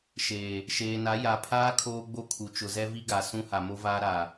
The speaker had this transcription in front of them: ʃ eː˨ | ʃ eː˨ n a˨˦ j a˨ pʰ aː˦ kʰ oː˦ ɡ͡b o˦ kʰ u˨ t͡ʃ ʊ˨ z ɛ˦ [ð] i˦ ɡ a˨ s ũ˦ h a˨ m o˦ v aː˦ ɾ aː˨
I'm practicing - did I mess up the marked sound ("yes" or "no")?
yes